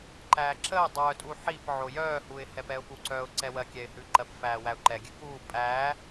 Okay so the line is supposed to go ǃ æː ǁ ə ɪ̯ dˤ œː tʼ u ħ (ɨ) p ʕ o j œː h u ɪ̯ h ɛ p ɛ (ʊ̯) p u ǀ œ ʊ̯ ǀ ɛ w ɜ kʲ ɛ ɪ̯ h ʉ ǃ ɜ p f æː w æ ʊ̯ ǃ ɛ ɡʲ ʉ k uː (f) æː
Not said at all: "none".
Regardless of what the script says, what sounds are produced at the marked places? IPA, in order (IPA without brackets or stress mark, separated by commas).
i, ʊ̯, pʼ